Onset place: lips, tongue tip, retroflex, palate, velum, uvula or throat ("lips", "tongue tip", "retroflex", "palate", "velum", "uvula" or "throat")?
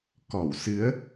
velum